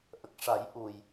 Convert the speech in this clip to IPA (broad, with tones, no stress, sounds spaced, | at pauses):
ʔ ə˨˩ k̚ ʂ a˨˩˦ j ʔ u˨˩ j